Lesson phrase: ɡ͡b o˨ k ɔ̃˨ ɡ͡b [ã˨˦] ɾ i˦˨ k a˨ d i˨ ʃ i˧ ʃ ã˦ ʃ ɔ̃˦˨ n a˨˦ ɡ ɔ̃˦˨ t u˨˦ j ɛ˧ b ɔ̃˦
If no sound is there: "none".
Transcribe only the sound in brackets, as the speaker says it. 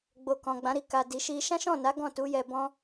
ã˨˦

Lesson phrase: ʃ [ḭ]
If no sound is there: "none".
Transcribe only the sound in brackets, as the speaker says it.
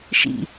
ḭ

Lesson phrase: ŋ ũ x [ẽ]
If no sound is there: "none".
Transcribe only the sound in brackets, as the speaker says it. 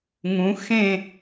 ẽ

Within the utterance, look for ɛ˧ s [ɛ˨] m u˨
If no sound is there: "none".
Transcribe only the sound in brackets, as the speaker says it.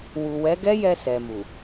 ɛ˨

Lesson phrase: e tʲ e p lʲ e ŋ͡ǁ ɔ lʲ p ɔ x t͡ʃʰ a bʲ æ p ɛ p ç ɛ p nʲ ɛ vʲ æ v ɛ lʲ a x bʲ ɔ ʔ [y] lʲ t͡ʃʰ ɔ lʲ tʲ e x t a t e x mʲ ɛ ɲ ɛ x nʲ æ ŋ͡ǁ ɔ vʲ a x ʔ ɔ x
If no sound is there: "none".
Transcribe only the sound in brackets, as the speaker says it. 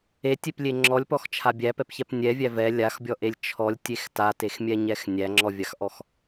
e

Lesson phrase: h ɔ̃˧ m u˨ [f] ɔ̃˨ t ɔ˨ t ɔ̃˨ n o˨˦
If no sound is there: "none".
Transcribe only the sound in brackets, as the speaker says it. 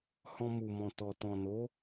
m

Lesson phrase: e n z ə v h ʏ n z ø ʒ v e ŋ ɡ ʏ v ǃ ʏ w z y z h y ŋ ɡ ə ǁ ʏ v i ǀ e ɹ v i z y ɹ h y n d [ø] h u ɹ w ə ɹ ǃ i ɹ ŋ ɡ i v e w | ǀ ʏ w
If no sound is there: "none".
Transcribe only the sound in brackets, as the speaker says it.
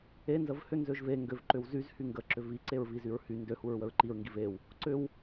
ø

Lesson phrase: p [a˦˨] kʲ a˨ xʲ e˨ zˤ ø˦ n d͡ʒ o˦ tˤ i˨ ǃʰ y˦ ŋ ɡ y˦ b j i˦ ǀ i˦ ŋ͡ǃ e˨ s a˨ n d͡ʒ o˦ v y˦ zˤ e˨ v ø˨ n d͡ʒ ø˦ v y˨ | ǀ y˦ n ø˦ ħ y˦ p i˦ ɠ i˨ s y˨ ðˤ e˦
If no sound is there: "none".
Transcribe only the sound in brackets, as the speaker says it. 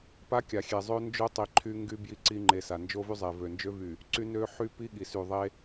a˦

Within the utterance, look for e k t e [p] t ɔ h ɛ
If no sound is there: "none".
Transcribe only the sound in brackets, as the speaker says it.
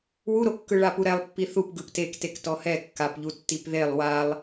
k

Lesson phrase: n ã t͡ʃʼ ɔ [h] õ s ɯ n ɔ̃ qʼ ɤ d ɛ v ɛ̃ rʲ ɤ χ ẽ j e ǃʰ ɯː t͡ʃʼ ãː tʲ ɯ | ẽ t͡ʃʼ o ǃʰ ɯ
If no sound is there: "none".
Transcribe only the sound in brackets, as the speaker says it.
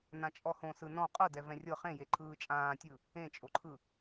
h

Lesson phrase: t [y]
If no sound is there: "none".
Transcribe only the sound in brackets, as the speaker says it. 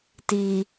i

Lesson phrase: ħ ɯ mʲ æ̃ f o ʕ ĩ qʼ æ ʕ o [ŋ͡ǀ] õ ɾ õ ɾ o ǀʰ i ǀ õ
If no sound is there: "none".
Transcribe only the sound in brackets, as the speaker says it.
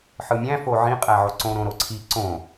ǀ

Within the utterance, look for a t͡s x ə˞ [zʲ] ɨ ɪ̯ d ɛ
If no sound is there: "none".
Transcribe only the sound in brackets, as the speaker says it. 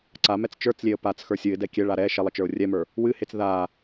sʲ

